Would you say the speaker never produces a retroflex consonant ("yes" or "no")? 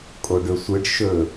no